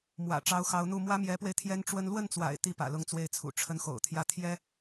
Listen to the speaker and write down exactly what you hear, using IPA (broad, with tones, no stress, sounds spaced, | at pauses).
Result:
m w ä̰˨˩ ʈ͡ʂ ɑ˧˥ ʊ̯ x ɑ˧˥ ʊ̯ n̪ u˥˩ m w ä˥ m j ɛ˧˥ p w e˧ ɪ̯ t̪ʰ j ɛ˥ n ʈ͡ʂ w ə˥ n l w ə˥˩ n t͡s w a̰˨˩ ɪ̯ t̪ i˥˩ p ä̰˨˩ l ʊ˥˧ ŋ t͡s w e˥˩ ɪ̯ t͡sʰ ṵ˨˩ ʈ͡ʂʰ ə˧˥ n x o̰˨˩ ʊ̯ t̪ʰ j ä˥˩ t̪ʰ j ɛ˥